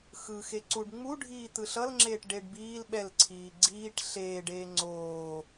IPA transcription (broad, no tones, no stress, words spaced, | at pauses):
xɯ xeǀuɖ ŋ͡mu ɖʱiːt̪ɯɬʌlŋ͡ǁeːʈ ɖeɖbiːl ɓɛlǀʰiː ɡ͡ǀiːʈ ɬeːɖeː ŋ͡ǀoː